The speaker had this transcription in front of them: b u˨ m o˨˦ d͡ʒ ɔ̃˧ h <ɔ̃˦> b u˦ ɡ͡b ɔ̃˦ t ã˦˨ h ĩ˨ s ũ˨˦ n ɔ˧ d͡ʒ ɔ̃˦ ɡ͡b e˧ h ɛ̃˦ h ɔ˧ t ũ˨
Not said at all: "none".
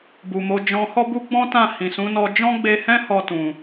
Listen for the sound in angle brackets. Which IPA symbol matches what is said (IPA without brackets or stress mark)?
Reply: ɔ˦